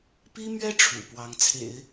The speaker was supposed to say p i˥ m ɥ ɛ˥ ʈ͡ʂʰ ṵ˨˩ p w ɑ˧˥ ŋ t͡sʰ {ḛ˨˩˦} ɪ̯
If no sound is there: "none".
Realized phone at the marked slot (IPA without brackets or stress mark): ḛ˨˩˦